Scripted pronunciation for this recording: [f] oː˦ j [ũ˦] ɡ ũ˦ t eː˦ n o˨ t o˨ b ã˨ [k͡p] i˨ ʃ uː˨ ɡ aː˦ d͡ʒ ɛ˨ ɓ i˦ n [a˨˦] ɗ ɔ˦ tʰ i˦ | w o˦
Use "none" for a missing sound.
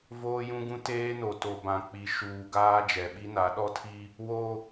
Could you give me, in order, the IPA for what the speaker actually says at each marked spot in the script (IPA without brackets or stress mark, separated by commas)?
v, ũ˦, k͡p, a˨˦